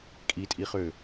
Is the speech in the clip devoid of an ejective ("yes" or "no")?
no